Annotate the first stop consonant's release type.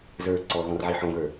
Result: click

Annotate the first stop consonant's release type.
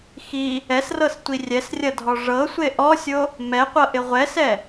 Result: plain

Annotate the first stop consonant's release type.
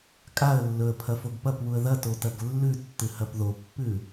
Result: ejective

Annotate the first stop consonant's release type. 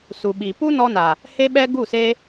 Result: implosive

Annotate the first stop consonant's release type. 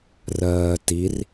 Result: plain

